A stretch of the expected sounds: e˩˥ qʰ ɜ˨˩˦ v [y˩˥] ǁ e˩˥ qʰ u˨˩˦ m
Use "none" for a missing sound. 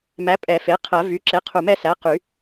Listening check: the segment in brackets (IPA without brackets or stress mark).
y˩˥